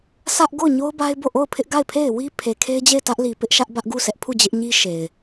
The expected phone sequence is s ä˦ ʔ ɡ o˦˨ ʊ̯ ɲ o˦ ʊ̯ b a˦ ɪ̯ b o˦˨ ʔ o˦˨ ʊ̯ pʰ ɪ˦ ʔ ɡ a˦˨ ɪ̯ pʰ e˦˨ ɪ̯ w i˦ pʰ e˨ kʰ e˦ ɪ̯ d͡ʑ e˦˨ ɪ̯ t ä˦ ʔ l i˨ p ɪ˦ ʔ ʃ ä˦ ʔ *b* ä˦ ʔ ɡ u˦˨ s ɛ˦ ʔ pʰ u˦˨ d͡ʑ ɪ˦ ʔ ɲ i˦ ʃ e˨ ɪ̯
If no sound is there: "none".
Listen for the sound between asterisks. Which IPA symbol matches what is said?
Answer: b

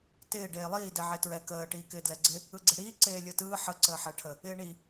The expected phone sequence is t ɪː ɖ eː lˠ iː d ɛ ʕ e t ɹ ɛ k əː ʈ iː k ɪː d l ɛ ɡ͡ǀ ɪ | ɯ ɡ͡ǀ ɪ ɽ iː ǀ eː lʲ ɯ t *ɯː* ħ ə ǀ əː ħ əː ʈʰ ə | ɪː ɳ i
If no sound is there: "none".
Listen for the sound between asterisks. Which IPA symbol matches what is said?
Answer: ɯː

